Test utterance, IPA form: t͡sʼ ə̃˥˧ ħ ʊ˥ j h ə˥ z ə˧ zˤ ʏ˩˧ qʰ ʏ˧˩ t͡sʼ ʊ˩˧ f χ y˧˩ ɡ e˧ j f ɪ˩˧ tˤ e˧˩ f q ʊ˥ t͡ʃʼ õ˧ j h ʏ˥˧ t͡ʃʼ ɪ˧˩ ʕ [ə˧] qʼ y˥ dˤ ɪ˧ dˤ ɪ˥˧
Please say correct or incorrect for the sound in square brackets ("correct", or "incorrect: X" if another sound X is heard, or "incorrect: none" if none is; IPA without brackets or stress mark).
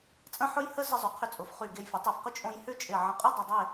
incorrect: ə̃˧